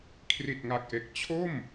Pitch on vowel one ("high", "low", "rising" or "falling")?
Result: low